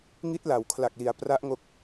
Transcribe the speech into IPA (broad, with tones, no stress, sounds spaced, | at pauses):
ŋ i˦˥ t̚ l a˩˦ w kʰ l a˨˩ k̚ l i˩˦ a̯ p r a˦˥ ʔ ŋ o˦˥ k̚